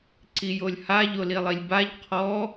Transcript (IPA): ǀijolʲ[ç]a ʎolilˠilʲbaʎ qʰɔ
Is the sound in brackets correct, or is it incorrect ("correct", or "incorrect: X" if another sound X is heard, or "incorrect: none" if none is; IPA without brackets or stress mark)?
incorrect: h